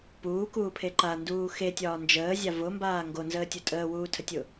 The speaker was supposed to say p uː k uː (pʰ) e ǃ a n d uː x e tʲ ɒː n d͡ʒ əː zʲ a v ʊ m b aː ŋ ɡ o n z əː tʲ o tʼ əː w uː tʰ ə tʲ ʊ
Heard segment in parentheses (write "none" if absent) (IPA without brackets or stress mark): pʰ